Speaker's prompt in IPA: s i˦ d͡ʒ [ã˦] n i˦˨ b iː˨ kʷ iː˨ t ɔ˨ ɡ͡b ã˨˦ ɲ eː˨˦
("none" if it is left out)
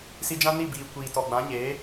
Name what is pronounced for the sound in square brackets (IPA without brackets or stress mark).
ã˦